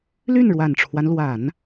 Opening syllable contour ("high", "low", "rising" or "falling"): falling